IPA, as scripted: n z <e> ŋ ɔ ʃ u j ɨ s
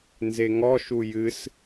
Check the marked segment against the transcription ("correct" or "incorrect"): correct